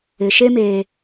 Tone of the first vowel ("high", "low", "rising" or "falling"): low